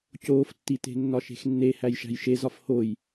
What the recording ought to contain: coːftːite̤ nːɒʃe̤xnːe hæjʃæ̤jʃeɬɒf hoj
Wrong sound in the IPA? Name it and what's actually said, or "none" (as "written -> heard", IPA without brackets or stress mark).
ɬ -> z